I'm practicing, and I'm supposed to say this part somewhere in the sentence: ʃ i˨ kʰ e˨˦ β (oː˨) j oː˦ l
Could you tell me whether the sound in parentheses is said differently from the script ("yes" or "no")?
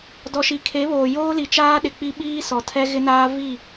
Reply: no